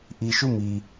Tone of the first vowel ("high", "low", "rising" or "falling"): low